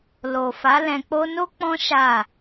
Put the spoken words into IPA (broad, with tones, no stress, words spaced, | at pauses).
lo˨fa˨˦lɛ̃˧k͡po˦ no˦ k͡pɔ̃˦ ʃa˦˨